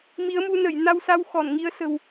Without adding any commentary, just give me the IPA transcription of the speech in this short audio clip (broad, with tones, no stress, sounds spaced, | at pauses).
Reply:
m i˨˦ ə̯ m u˧ n ə˧˩ j n a˧ w s a˧ w x ɔ˧˩ n ŋ i˨˦ ə̯ s ə̤˨˩ w